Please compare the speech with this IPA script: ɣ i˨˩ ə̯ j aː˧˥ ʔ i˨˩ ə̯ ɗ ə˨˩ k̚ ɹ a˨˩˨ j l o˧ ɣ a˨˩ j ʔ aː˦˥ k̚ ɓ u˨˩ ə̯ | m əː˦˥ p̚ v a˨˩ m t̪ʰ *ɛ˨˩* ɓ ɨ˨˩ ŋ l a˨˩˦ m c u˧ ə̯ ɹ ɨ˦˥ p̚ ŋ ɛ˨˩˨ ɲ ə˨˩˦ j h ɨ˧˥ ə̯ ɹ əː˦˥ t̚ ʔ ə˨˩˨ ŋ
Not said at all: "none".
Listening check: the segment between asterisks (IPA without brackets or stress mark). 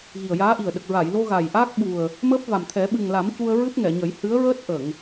ɛ˨˩˦